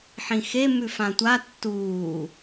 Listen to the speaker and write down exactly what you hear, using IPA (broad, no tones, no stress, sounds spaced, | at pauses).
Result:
ħ ĩ x e m ʉ f ã tʷ a tː uː